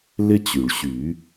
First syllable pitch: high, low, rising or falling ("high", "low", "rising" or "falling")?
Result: high